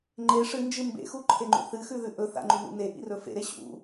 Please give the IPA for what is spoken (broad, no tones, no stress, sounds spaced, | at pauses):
ŋ͡ǃ e ʂ ɨ n d͡ʒ ɨ m b ḛ x u ǃʰ e ŋ͡ǃ ṵ θ ɨ x ʉ ð ʉ ʔ ɵ θ a̰ ŋ͡ǃ u n ṵ n e ʔ ḭ r ɵ f ḛ ɾ e ɕ ṵ